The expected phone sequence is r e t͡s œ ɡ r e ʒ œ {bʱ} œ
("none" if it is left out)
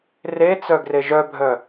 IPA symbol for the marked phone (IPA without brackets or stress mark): bʱ